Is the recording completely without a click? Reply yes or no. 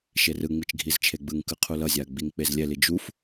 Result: yes